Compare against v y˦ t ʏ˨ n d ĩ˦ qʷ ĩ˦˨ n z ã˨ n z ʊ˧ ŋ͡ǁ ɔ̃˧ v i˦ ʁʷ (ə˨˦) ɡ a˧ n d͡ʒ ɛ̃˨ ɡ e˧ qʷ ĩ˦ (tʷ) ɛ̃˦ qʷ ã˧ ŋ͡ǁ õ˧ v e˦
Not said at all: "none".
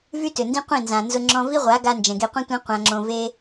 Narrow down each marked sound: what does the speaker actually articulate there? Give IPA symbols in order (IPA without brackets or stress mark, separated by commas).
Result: a˨˦, tʷ